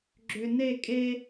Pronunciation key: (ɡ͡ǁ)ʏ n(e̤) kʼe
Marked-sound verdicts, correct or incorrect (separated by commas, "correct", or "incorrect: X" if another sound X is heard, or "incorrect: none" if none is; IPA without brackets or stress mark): correct, incorrect: e